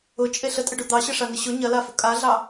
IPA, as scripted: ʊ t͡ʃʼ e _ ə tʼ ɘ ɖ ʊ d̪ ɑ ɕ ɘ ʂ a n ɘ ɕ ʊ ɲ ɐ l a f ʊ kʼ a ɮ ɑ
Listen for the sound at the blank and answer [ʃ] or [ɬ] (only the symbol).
ɬ